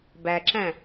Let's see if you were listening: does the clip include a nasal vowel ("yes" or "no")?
yes